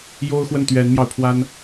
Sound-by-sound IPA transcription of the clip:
j o˥ ʊ̯ x w ə˥˩ n t̪ ɥ ɛ˧˥ n m j ɑ˧ ʊ̯ pʰ w a˥ n

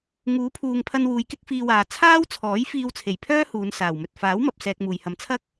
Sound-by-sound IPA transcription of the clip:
ŋ uː˨˥ pʰ uː˨ ŋ pʰ ɐ˧ n w uː˨˧ j k ɪ˥ k̚ f iː˧ w aː˨ t͡sʰ aː˥ w t͡sʰ ɔː˨˥ j f iː˧ w t͡sʰ e˨˩ j pʰ œː˥ h uː˨˧ n s aː˨˩ w m ɵ˨ t̚ f aː˨˥ w m ɐ˨ p̚ s ɛː˧ k̚ m uː˨ j h ɐ˧ m t͡sʰ ɐ˥ k̚

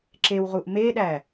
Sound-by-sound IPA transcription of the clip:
ǁ e w ʁ u ʔ m e ɗ æ

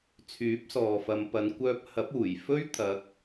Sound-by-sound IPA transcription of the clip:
t͡sʰ yː˨˥ p̚ s ɔː˨ f ɐ˨˧ m p ɐ˨˧ n kʷ œː˧ p̚ h ɐ˨˥ p̚ uː˨˩ j f ɵ˥ ɥ t̪ʰ ɐ˨˥ k̚

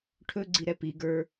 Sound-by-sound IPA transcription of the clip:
ʈʰ ɵ ɡ͡ǀ i ɾ ɛ p i ɡ ə˞

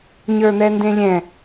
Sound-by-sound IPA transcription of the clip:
ɲ ə˞ n̪ ɛ n d ẽ lʲ ɛ̃

